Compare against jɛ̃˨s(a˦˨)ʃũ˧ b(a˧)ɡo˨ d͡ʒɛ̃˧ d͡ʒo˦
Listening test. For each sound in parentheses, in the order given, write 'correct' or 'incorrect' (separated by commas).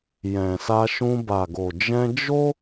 incorrect, incorrect